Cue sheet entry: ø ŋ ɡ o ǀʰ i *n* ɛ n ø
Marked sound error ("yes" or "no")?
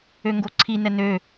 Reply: no